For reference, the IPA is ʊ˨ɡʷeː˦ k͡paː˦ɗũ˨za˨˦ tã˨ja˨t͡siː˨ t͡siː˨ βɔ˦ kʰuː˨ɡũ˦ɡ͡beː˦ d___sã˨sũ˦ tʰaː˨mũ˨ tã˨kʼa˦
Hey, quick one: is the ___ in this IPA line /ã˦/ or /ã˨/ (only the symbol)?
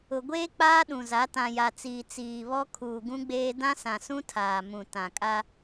ã˦